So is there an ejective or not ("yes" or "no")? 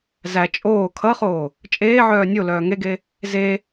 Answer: yes